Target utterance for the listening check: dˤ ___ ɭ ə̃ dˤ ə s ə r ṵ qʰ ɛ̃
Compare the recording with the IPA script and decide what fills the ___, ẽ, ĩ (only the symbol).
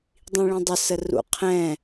ĩ